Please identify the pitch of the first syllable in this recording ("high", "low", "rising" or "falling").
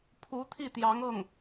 rising